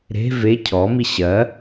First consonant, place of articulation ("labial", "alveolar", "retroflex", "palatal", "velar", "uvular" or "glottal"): alveolar